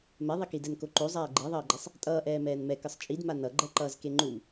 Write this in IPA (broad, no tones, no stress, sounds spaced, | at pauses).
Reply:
m ɛ ðˤ i k i d ɛ n k o ǃ o zˤ aː ɡ͡ǃ i ðˤ ʌː ɡ͡ǃ ɛ sˤ | tʼ ʌː ʔ ɛː m ɛː n m ɛ k ɯ sˤ t͡ʃʼ i d m a n ʌ ɡ͡ǃ ɛ ǃ ʌː z k e ŋ͡ǃ u m